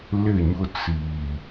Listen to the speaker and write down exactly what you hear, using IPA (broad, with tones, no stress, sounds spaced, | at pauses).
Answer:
l ɪ˦˨ ɲ ʊ˦ t͡s iː˨